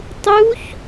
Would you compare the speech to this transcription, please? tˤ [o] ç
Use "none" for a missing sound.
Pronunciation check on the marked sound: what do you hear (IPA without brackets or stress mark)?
u